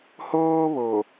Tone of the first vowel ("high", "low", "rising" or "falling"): high